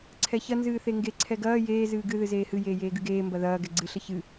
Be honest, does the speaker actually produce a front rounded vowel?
no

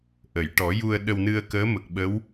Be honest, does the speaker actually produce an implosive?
yes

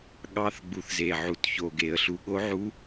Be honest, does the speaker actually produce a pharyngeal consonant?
yes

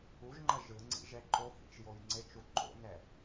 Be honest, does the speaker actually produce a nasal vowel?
no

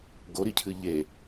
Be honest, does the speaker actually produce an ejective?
no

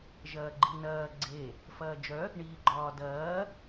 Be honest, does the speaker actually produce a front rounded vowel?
yes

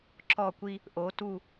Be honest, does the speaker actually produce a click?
yes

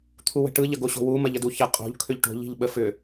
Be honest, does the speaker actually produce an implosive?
yes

